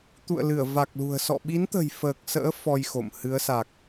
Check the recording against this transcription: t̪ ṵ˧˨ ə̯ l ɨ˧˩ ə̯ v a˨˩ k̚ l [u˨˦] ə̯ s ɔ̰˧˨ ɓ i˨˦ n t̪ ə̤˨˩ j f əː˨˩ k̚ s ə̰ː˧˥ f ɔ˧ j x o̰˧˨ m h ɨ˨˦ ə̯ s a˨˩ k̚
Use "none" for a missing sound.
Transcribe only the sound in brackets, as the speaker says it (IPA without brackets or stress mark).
ṳ˨˩